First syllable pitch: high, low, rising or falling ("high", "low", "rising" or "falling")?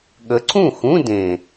rising